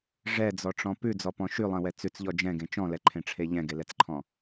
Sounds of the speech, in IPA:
ʐ ɛ d͡z ɔ ʈ͡ʂ ɔ̃ p ʉ d͡z ɔ p ɔ̃ ʃ ʉ lˠ ɛ̃ w ɛ t͡s ʉ t͡s ʎ ɔ d͡ʒ ɛ̃ ɡ ẽ t͡ʃ ɔ̃ l ɛ ǃʰ ẽ ʈ͡ʂʰ e ʎ ɛ̃ ɡ e l ɛ t͡s ǃʰ ɔ̃

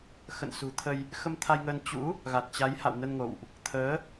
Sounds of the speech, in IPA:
x ə̰˧˨ n s ṳ˨˩ t̪ʰ ə˧ j | x ə˧ m t̪ʰ a˧ j ŋ əː˧ n t͡ɕ ṵ˧˥ | ɣ a˨˩ t̚ t͡ɕ a˨˦ j h a̰˧˨ w n ə˧ n ŋ o̰˧˨ w ʔ | t̪ʰ əː˨˦

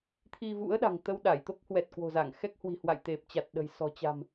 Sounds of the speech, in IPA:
t̪ʰ i˧ v ṵ˧˥ ə̯ ɗ a̤˨˩ ŋ t̪ ə˧ w ɗ a˧˩ j t̪ o˦˥ k̚ h w ɛ˨˩ t̚ k w o̤˨˩ z a˧˩ ŋ x ɛ˦˥ k̚ h w i̤˨˩ h w a̰˧˨ j t̪ e˨˩ p̚ t͡ɕ a˨˩ t̚ ɗ ə̤˨˩ j s ɔ̤˨˩ t͡ɕ a̤˨˩ m

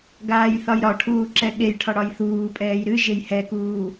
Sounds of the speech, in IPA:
ɡ aː j θ ɒ j ɾ ɒ ʈʰ uː ǁ ɛ ɠ e j ʈʰ ɒ ɽ ɒ j θ uː pʼ ɛː j ɾ ɨ ʒ e j h ɛ k uː

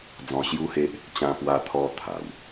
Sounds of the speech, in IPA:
d͡z ɔ̃˧ ɕ j u˦ h e˦ ʔ | t͡ɕ ã˧ p w a˧ t̪ʰ ɔ˧ t̪ʰ a˨˩ w

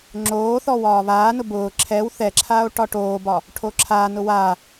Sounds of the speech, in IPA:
ŋ͡ǁ oː θ ɔ w ɒː β aː n ʊ b ʊː ǁʰ ɛ w θ ɛ ǁʰ aː o̯ ʈ ɒ ʈ oː b ɒ | ʈʰ o ǁʰ aː n ʊ w aː

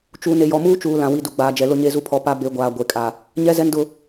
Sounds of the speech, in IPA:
t͡ʃ uː˨ n e˨ j ɔ˨ m uː˦ t͡ʃ uː˨ l ã˨ w i˨ d u˨ ɡ͡b aː˨ d͡ʒ ɛ˨ l ʊ˦˨ ɲ e˦˨ z u˦ pʰ ɔ˨˦ p a˦ b e˨˦ ɡʷ aː˨ ɡʷ e˨ kʼ a˨ | ɲ ɛ˦ z ɛ˦ n d ʊ˦

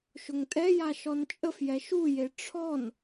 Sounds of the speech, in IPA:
ʃ ʊ ŋ tʼ ɛ j a ʃ ɔ n t͡ʃʼ ə f j ɛ ʃ u j e ʈ͡ʂʰ ɔ n

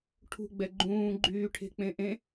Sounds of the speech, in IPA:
ʈʰ ṳ ɡ͡b ɛ ɡ͡ǃ ũː ɡ͡ǃ yː ʈʰ e̤ k͡p ẽ ʔ ẽ

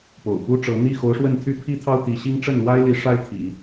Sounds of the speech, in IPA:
p o̰˨˩ ʊ̯ p u˥ ʈ͡ʂ ɤ˧˥ n̪ i˥˩ x o˧˥ ʊ̯ ʂ w ə˥˩ n t̪ʰ y˥ pʰ i˥ t̪ʰ ɑ˥ ʊ̯ t̪ i˧˥ ɕ i˥ ŋ ʈ͡ʂ ə˥˩ n l w a˥ ɪ̯ l i˧˥ ʂ a˥ ɪ̯ t̪ʰ ḭ˨˩˦

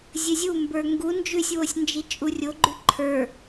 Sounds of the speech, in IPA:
zʲ ɘ zʲ u m b ə˞ ŋ ɡ u n d͡ʒ ʉ sʲ w o sʲ n d͡ʒ i t͡ʃʼ u rʲ o ɡ͡ǃ ʉ ǃʰ ə˞

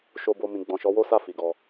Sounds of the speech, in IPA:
ʃ o˦ b o˦ m ĩ˧ ɡ͡b ɔ̃˨ ʃ ɔ˨˦ w o˦ s a˦˨ f i˨ ɡ ɔ˧

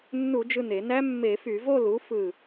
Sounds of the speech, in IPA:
nː u˧˩˧ d͡ʒ ɯ˧˩ n e˧˩˧ n æ˦˥ mː e˧˩˧ f y˧˩˧ v o˥˧ l u˩˥ f ɯ˧˩

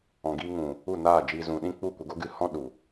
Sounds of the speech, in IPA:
ɔ̃˨ ɡ iː˧ ŋ ũ˨ | u˦˨ n aː˦˨ d͡ʒ iː˧ z ũ˨ ɗ ĩ˦ k͡p u˦˨ kʷ ə˧ ɡ o˦ ɡ ɨ˧ h ɔ̃˦ ɗ u˨

